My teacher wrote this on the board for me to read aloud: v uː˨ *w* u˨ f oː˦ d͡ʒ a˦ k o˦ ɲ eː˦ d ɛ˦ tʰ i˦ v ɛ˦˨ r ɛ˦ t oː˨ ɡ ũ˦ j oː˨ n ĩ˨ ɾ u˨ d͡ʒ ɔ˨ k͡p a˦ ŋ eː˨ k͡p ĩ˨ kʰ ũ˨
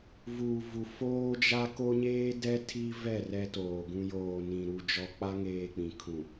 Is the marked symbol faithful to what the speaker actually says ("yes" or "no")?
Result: no